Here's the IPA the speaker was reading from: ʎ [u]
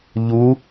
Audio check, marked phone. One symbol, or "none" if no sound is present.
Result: u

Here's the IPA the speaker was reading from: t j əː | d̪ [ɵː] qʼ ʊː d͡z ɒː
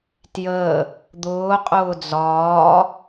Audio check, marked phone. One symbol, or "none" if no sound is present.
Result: ʊː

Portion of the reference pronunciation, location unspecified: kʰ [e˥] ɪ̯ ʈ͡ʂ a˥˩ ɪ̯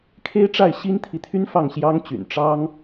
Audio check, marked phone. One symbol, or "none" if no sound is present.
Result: e˥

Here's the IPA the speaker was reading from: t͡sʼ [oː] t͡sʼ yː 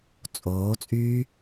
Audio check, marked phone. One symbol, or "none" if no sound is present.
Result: oː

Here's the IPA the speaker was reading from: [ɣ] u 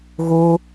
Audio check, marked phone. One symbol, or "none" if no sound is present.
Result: ɣ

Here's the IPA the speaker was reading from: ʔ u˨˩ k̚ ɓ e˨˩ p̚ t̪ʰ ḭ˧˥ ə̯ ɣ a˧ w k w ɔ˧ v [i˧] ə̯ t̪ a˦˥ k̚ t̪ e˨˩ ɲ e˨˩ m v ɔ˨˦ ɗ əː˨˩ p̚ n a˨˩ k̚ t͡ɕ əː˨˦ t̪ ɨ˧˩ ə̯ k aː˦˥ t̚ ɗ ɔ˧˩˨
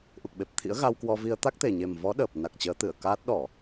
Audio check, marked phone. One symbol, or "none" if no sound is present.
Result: i˧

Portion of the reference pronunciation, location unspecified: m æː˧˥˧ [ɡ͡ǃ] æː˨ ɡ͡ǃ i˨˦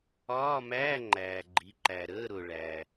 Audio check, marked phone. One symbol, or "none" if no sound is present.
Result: ŋ͡ǃ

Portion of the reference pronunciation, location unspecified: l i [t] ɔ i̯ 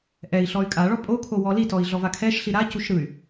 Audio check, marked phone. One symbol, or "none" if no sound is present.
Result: t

